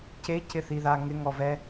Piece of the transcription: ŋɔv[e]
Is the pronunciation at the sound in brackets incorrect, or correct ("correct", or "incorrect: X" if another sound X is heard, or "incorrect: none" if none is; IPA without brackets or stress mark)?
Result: incorrect: ɛ